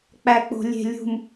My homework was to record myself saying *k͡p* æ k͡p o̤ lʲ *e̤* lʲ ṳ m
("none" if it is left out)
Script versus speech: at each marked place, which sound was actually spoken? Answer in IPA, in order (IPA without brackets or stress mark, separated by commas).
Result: k͡p, e̤